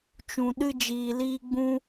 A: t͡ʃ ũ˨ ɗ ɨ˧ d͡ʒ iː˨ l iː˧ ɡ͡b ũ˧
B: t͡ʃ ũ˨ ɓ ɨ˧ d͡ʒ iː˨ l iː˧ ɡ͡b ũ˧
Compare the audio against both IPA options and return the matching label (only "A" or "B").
A